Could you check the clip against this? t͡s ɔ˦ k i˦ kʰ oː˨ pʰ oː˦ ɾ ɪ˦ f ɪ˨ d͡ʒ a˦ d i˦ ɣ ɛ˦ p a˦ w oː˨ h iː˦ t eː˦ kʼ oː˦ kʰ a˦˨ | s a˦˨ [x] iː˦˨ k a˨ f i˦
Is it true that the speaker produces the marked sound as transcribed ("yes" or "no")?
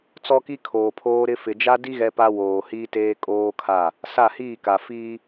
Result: no